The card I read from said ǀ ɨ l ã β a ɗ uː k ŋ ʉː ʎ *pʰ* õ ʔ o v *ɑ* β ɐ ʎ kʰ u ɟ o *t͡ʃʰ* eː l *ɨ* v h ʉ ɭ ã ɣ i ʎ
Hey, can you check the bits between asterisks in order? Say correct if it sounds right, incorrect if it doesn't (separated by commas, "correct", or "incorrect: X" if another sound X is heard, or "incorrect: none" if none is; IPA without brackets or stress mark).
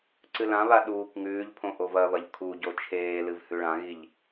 correct, incorrect: ɐ, correct, correct